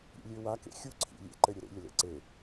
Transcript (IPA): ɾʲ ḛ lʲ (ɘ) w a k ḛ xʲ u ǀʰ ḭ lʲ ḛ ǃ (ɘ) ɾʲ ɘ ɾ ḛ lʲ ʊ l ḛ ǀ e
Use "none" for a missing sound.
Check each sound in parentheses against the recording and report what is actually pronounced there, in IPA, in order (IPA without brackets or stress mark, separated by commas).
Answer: ø, ɘ